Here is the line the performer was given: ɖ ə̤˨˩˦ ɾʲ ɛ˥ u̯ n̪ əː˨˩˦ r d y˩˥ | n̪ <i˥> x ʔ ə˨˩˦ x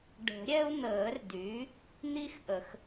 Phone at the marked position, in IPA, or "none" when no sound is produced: i˥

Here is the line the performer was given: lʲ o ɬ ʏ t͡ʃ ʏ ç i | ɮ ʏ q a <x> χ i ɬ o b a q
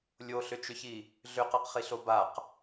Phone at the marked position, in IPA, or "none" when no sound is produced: q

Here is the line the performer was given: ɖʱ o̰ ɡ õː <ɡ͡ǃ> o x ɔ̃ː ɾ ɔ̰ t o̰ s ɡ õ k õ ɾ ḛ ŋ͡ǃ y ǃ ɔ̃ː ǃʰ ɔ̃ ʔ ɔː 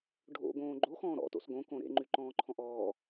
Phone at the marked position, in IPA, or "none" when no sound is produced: ɡ͡ǃ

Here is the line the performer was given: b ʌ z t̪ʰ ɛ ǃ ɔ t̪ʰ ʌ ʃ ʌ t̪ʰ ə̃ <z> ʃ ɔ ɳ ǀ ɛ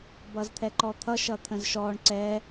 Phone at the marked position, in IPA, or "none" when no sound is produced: z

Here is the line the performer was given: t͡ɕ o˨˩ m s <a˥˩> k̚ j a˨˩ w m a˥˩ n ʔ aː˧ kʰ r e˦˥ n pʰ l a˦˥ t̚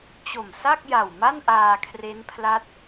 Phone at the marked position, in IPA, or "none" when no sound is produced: a˥˩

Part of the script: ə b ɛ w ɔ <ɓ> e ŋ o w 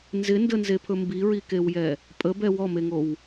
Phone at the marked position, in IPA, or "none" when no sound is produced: m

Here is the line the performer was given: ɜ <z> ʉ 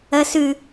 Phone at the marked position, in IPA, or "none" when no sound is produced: s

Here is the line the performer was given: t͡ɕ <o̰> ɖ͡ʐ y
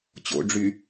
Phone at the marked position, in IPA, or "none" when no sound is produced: o̰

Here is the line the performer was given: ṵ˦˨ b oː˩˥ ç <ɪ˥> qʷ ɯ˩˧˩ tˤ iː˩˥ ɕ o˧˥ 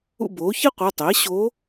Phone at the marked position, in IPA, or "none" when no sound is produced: i˥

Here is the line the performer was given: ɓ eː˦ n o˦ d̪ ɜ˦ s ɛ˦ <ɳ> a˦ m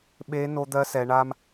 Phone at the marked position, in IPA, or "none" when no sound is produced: ɳ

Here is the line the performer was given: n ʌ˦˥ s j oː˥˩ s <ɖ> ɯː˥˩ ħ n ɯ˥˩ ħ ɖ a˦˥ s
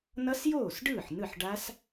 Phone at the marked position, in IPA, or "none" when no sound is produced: ɖ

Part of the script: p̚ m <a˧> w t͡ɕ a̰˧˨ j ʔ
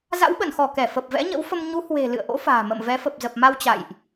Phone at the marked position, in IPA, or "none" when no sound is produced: a˧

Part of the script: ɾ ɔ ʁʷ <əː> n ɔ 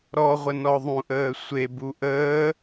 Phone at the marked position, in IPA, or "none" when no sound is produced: ə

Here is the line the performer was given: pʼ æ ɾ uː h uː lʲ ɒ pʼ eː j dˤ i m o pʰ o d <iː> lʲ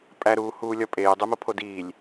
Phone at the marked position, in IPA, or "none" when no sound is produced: iː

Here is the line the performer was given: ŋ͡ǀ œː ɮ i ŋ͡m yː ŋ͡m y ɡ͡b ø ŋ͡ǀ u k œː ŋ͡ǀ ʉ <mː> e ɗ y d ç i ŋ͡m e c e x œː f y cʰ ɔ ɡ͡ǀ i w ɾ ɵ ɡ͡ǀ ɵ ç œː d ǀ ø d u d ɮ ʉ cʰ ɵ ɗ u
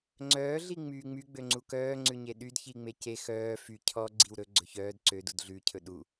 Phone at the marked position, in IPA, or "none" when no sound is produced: ɲ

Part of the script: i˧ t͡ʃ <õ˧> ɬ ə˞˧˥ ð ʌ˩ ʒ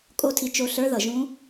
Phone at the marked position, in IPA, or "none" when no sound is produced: o˧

